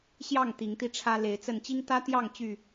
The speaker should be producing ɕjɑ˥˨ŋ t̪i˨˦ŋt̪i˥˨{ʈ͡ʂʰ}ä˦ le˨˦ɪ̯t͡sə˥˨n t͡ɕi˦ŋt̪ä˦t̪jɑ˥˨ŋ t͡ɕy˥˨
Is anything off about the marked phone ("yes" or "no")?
no